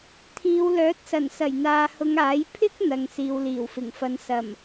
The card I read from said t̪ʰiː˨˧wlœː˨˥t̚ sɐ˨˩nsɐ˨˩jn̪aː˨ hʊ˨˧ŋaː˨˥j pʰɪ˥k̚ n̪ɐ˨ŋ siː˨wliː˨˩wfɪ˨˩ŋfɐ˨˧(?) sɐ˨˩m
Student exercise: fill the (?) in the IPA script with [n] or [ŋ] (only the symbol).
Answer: n